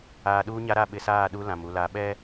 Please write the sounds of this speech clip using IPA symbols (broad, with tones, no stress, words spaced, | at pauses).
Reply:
aː˨ɗuː˦ɲa˦ ɾa˦˨ɓɪ˨saː˦˨ ɗu˦ lã˨mu˨la˨ ɓɛ˦